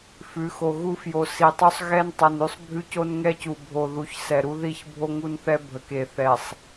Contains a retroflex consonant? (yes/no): no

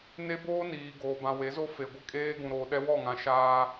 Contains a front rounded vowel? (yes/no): no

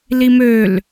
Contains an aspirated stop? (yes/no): no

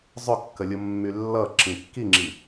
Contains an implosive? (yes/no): no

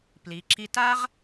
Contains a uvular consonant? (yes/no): yes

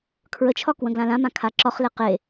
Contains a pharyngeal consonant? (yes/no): no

